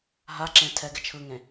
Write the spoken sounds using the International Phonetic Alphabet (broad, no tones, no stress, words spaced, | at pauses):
ɦaǁẽ tʰɛɡɪ t͡ʃʰɯŋẽ